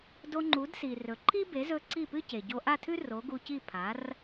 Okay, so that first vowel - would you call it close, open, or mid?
mid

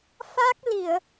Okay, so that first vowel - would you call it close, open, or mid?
open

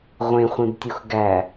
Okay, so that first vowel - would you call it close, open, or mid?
mid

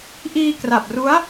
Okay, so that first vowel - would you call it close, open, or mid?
close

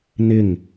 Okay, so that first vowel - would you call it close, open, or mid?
close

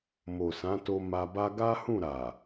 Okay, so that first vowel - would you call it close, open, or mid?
mid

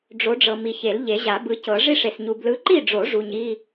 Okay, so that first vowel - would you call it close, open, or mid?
mid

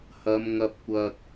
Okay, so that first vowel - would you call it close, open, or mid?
open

